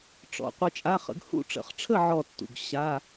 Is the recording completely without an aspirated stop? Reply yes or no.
no